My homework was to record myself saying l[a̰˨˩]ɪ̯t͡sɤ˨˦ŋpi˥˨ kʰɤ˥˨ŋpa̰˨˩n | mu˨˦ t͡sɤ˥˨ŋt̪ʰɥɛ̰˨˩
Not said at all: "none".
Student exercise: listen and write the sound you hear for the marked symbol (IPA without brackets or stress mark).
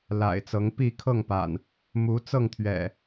a̰˨˩